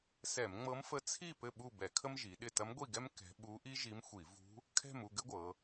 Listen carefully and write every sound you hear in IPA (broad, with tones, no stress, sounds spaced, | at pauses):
s ɛ˧˩˧ m ŋ͡m ɤ˧˥ m f ə˧˥ t͡sʰ i˥˨ p ɘ˥˨ ɓ u˥˨ b ɛ˧˩˧ kʰ ə˥ m ʒ i˩˧ ɗ ɪ˥˨ t ɐ˧˥ m ɡʷ i˥˨ ɡ ɛ˥ m k ɛ̤˧˥ ɓ u˧˥ ʔ i˥ ʒ i˧˥ m xʷ i˧˩˧ v ṳ˧˥ | kʰ ɛ̤˥˨ m u˥˨ ɡ ɘ˥ ɡʷ ɤ˩˧